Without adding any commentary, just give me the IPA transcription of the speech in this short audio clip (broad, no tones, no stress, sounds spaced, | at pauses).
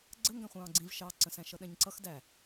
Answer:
ɡ͡ǀ ə ŋ ɡ æ̃ χʷ ɑ̃ː ɡ͡ǀ ĩ v ʃ ɑ ǀ ə̃ s æ̃ ʃ ʌ ɗ ɛ̃ ɲ ǀ ʌ x d æ